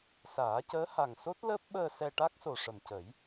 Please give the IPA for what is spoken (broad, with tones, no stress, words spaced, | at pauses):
saː˨˩˦cəː˧˥ha˨˩ŋ so˦˥t̚ ləː˦˥p̚ɓəː˧ sɛ˧ʈa˦˥k̚so˨˩ ʂə˨˩mcə˨˩˦j